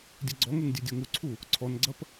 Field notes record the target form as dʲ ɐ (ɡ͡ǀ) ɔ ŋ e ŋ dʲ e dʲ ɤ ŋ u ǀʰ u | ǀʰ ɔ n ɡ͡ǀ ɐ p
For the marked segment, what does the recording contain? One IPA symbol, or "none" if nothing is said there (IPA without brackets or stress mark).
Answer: ɡ͡ǀ